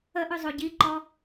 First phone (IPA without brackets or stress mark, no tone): ə